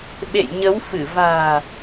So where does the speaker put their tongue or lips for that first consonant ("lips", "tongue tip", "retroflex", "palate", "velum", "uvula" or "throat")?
lips